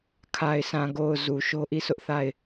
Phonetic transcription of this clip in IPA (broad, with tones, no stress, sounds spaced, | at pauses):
kʰ a˨ ɪ̯ s ã˨ ɡ o˨ ʊ̯ z u˨ ʃ o˦ ʔ i˦˨ sʰ ʊ˦ ʔ θ a˦˨ ɪ̯